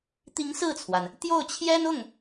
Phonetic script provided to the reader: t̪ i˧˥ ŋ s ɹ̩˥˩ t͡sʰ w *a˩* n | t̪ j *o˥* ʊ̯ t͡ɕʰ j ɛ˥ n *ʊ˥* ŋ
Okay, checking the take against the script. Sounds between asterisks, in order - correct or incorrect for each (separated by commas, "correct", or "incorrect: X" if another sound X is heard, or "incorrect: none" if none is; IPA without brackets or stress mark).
correct, incorrect: o˥˩, incorrect: ʊ˥˩